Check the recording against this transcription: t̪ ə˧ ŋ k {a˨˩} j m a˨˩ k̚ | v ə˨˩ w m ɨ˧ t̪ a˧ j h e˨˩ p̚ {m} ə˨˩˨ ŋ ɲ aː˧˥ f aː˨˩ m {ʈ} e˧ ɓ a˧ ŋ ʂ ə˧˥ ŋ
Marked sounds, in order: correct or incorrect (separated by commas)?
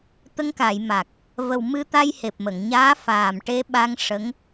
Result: incorrect, correct, correct